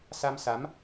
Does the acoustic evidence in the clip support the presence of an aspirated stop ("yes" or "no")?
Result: no